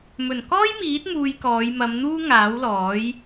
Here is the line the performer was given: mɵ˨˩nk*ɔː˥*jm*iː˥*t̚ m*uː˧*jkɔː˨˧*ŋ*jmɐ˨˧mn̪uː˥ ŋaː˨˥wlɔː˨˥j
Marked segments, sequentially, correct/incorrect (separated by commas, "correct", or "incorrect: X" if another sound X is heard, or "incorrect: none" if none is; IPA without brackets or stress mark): correct, incorrect: iː˨˥, correct, incorrect: none